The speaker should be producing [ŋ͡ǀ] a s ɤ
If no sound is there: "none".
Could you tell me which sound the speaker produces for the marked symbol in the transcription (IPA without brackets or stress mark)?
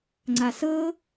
ŋ͡ǀ